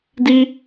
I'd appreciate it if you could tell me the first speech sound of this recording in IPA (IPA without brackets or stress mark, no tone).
d